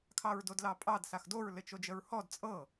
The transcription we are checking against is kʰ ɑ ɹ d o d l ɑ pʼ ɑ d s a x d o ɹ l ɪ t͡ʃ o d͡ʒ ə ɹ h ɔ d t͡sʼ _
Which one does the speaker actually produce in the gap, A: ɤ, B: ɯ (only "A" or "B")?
A